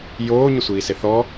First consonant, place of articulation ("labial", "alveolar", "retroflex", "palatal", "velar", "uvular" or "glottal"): palatal